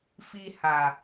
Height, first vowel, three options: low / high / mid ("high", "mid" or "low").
high